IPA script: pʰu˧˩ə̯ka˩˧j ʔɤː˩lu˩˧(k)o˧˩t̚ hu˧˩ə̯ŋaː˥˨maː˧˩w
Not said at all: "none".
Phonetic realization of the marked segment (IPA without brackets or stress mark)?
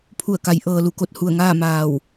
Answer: k